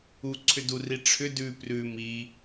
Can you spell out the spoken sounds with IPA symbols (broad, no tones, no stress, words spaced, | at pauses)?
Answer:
u ǀʰʏduri ʈ͡ʂʰʏ dʉ prʉ mi